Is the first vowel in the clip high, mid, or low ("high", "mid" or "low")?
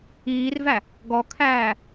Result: high